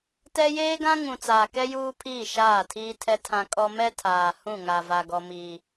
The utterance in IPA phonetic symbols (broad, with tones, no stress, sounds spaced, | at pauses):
t ɛ˦ j eː˦ ɡ ã˦ ŋ ũ˨ t͡s aː˨ k ɛ˦ j uː˦ pʰ iː˦˨ ʃ aː˦˨ tʰ iː˦ tʰ ɛ˦ tʰ ã˦ kʼ ɔ˦ m ɛ˦ tʰ aː˨ h ũ˦˨ ŋ a˨ v a˨ ɡ ɔ˦ m iː˦